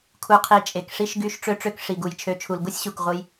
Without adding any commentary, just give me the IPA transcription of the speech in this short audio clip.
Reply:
kʰ u˧ qʰ i˧ t͡ʃʼ e˨ k ʂ i˦ ʃ ɡ y˦ ʃ ʈ͡ʂ ø˦ ʈ͡ʂ ø˦ k ʂ i˨ ɡ u˨ j t͡ʃʰ ø˨˦ t͡ʃʰ u˨ l ɡ u˦ sʲ ɕ u˨ k ʁʷ ɯ˧ j

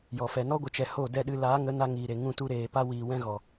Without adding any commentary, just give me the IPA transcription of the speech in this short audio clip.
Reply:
j ɔ˨ f ɛ˨ n ɔ˦ ɡʷ ə˨ t͡ʃ ɛ˨ h o˦˨ d ɛ˦˨ ɗ ɨ˧ l aː˨˦ ŋ ə˨˦ n a˧ ŋ iː˨ ɾ e˨ ŋ ũ˦ t u˦ ɾ eː˨ p a˦ w iː˨ w ɛ̃˦ ɣ ɔ˨

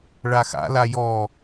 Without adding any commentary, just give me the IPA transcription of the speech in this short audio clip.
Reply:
ɭ a x a̰ l a j ɔ

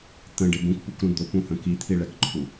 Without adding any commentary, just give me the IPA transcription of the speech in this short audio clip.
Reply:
t̪ ə̃ ɖ ɪ b ũ k p u k ɾ ũ d̪ ʊ p ũ h ə̃ k i t̪ʰ i ɭ ɛ k ǃʰ u

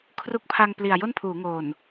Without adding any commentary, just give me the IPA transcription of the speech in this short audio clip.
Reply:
kʰ r u˦˥ k̚ pʰ a˧ ŋ p l i˨˩ a̯ j o˥˩ n pʰ uː˩˦ ŋ oː˨˩ n

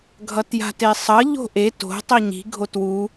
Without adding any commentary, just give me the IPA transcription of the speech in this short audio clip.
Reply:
ɡʱ ʌ t j a̤ t e sˤ ʌ ʎ o̤ ʔ e t o̤ tˤ i ɲ i̤ ɡʱ o t w u

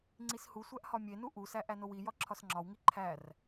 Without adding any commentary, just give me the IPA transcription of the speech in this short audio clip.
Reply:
ŋ͡ǀ i s h u sʷ æ ʔ h ɒ mʲ e n u ʔ u s æ ʔ æ n o w i j ɒ ǁʰ ɒ s ŋ͡ǁ ɒ w ŋ i ǃʰ æ r

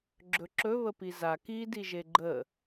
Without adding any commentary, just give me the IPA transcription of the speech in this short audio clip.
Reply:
ɡ͡ǁ ɵ ǁ ɵ β ə p i z a k i d i ʒ e ɡ͡ǃ ə

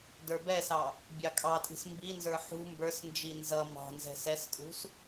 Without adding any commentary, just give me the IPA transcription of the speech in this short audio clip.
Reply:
d ə˞ b ɛ s ɑ | bʲ ɑ kʼ ɑ tʼ i̤ s m b i n z ə˞ ħ ṳ m b ə˞ s n d͡ʒ i n z ʌ m ɑ̤ n z ɛ̤ s ɛ s kʼ ṳ s

